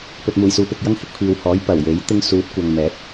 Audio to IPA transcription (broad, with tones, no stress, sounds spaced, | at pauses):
p ɵ˨ t̚ m uː˨˩ j s uː˨˧ p ɪ˨ k̚ j ɐ˥ ŋ h ɪ˨˥ k̚ pʰ iː˨ w h ɔː˨˥ j p ɐ˨˩ w j e˨˥ j t̪ ɪ˥ ŋ s uː˨˥ t̚ kʷ ɐ˨ ŋ m ɛː˨˥ t̚